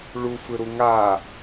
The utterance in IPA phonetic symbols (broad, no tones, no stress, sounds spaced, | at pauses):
ɭ u f ɯ ɾ u ŋ a